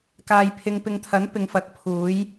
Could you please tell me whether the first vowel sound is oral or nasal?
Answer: oral